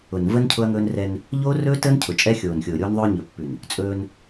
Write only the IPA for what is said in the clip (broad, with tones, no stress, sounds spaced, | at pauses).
ʊ˨ n v ə˦ n cʰ ʊ˦ ɐ̯ ŋ ɵː˦ n r ɛ˦ n | ʎ oː˦ r ɵː˦ t əː˦ n cʰ ʊ˨ t͡ʃʼ ɛ˦ xʲ oː˨ n xʲ ʊː˨ ɾʲ oː˦ n ðˤ ɵː˦ ɲ ɵ˨ pː ʉ˨ n | t͡sʼ ɵː˦ n